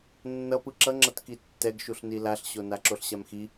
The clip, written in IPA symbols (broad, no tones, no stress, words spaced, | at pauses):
nːʌ pɯǁʌŋ͡ǁʌt kitːɛɡʃuɬ nilaɬɕo naǁoɬɕamxi